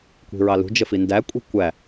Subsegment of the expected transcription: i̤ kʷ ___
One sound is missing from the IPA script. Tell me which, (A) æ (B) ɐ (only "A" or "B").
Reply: A